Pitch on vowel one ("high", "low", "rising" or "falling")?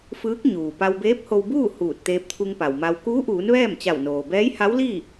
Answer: rising